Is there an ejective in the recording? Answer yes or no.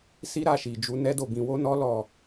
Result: no